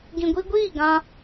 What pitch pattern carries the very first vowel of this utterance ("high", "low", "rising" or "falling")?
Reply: low